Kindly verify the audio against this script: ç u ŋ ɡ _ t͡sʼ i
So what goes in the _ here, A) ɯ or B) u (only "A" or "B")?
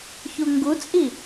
B